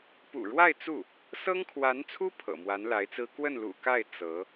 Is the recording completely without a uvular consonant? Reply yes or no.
yes